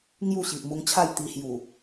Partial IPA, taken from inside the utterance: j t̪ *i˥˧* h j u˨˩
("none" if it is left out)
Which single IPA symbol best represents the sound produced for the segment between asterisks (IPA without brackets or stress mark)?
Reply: i˧